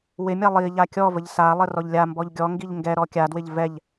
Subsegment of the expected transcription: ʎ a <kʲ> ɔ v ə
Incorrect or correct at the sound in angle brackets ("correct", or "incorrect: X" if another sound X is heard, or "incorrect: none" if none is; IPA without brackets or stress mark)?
correct